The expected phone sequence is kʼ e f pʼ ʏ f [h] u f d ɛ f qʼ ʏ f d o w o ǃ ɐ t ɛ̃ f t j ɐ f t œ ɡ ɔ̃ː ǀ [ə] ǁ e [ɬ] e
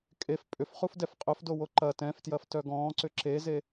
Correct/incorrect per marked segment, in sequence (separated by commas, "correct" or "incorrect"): incorrect, incorrect, incorrect